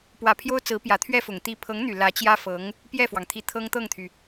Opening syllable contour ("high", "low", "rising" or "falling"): low